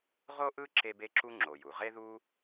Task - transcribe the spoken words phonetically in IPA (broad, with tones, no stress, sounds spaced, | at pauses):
ʁ o˥ ʔ ɯ˥ ǁ e˥ b e˥ ǁ u˥ ŋ͡ǁ o˩ j u˩ ʁ e˥ ð u˥